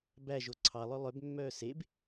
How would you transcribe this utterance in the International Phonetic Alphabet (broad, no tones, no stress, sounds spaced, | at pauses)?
b æ ʒ o ǀʰ ɑ lˠ œ lˠ œ b mː œː s e b